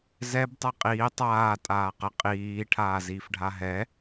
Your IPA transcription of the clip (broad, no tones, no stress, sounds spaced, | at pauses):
z ɛ b tˤ ɛ qʼ iː tˤ aː tʼ aː q ə qʼ iː ʈʰ aː z iː f ɖʱ a ɦ ɛ